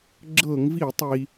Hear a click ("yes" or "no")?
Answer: yes